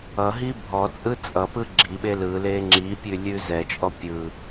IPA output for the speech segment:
ʌɦi bʱɔt͡sʼɯ t͡sʼʌpɯ ɡ͡ǁiɓe lɯle ŋ͡ǁipʲʉ lʲʉzɛt͡ʃʼɔ pʲɯ

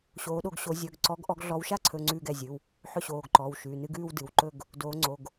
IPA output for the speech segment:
ɕoː˨˦ɗo˨˦ɡɕo˨˦ zʲɵ˩˧˩ɡǀɔ˨˦ɡ ʔɔ˨˦ɡɮɔ˨˦wʃa˥˧ǀʰɵ˩˧˩ ŋ͡ǀʉː˥˧ɡɛ˩˧˩ zʲɨ˩˧˩w | ħɵ˥˧ɕoː˩˧˩ɡǃɔː˩˧˩wʃʉː˩˧˩ nɨ˥˧ɡʉː˥˧wdɨ˩˧˩wǃɵ˥˧ɡ | doː˨˦ŋ͡ǀo˩˧˩ɡ

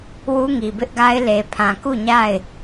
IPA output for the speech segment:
wu˦ŋi˨bɪ˦ʔɡa˦ɪ̯ le˨pʰã˨ ku˦˨ɲa˦˨ɪ̯

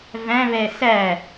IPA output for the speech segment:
væ̃ βɛsæ

